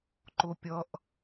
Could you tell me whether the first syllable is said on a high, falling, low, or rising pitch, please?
low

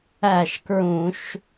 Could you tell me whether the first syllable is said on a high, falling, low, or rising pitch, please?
falling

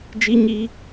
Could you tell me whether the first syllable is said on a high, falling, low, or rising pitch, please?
high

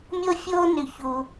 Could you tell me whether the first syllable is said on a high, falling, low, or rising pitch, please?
high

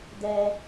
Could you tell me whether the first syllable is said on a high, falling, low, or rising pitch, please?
low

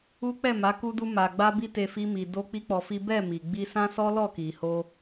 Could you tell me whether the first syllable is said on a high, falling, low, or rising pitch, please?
high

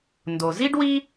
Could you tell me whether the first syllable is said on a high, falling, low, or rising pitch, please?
low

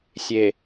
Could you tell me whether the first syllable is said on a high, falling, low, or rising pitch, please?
low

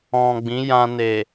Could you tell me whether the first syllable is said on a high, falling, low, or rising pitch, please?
low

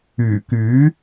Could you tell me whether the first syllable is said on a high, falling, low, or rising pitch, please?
low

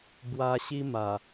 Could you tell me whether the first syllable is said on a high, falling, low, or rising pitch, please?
high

